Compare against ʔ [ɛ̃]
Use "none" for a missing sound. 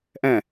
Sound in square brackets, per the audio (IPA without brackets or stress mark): ɛ̃